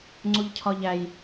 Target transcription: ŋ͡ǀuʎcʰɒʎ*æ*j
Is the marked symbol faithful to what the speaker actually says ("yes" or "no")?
yes